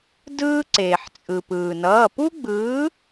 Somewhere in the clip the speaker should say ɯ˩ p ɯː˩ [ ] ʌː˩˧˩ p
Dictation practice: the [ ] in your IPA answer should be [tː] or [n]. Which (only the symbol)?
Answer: n